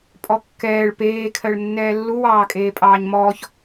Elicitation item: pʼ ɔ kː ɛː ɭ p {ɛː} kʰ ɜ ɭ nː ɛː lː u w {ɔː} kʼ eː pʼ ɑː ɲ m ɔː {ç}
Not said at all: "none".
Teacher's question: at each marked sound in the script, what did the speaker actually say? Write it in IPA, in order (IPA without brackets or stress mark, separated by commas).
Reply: eː, ɑː, ç